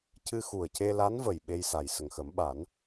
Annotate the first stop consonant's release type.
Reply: plain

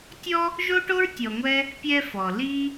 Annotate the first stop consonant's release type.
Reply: plain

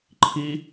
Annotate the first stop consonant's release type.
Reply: click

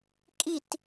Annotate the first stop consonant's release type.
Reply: ejective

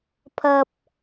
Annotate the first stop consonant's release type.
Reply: aspirated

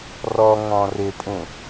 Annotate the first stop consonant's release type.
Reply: ejective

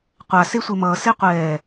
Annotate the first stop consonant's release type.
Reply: plain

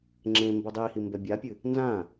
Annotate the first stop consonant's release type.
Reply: click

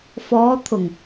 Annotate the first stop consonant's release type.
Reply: aspirated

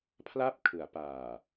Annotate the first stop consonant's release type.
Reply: aspirated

